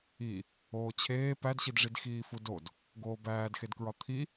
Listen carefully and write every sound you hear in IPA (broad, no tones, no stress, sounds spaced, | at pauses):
i | oː t͡ɕʰ eː p æ d ɕ i d ʐ i d x iː f u d o d | ɡ oː b æː d x e d k ɹ ɒ t̪ʰ i